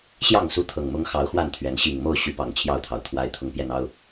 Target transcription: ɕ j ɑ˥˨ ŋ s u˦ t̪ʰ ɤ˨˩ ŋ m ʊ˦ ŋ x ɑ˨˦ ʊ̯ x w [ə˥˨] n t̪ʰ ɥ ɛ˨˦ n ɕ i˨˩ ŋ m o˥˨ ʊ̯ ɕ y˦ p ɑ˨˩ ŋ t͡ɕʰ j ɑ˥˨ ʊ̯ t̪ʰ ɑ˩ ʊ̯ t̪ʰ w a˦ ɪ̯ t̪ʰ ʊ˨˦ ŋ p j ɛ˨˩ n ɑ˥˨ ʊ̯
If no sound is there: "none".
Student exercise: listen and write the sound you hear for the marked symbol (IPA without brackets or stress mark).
a˥˨